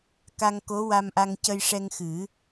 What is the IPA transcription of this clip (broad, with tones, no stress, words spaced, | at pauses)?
ka˧ŋ ko˧˥wa˧mʔa˧ŋ cə˧jʂɛ˧ŋxɨ˨˩˦